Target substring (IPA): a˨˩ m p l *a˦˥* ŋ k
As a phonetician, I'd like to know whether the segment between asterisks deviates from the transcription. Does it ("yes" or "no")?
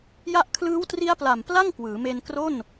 yes